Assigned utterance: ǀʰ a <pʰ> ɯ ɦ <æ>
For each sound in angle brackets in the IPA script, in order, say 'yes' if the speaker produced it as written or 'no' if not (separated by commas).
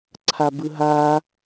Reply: no, no